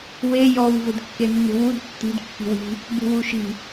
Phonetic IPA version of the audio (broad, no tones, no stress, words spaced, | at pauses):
we jɔw vʊdkːenːṳwud tːi̤d kːi̤wi̤ | bṳwuʃi̤